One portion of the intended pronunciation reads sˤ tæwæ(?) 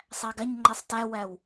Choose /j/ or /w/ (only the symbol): w